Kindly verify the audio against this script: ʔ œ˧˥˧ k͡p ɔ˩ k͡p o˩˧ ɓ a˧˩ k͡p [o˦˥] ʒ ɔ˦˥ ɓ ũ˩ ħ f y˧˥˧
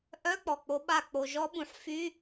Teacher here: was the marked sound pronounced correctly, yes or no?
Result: no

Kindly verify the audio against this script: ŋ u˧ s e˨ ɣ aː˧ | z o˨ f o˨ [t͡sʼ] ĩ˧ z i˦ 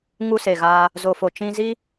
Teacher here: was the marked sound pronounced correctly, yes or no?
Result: no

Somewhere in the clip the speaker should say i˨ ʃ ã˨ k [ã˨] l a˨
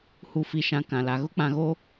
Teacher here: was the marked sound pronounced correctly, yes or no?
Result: yes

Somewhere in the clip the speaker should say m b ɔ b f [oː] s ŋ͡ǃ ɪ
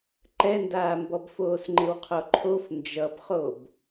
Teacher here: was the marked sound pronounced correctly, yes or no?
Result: yes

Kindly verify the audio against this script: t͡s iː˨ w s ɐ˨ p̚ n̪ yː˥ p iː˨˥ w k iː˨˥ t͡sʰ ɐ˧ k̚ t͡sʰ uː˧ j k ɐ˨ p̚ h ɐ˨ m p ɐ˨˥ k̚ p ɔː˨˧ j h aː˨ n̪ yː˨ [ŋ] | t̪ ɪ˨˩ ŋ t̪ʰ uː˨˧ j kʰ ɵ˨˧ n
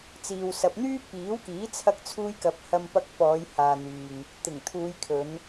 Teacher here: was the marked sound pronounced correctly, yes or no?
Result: yes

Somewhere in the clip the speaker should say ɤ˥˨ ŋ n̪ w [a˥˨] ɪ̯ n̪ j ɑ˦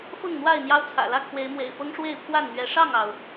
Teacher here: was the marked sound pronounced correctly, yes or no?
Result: yes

